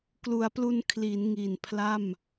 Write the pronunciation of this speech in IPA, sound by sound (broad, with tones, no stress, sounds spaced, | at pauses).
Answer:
k l u˩˦ a̯ p l u˧ n kʰ l i˩˦ n ŋ i˨˩ n pʰ l a˥˩ m